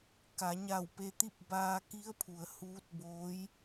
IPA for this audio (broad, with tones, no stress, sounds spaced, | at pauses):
k a˩˧ ɲ a˧˩ w p e˧ t̪ i˥˨ p̚ b aː˧ k i˧˥ ə̯ pʰ u˩ ə̯ h uː˧˥ t̚ b oː˧˥ j